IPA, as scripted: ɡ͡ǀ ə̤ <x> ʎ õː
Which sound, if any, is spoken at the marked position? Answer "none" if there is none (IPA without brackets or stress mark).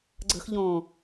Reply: x